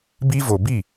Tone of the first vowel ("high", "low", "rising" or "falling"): high